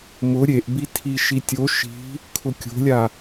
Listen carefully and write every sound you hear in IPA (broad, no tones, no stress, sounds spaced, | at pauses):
m ʊ ɾʲ e ʔ b i tʰ i ʃ i tʲ o ʃ i̤ | kʰ ʊ kʲ o̤ lʲ a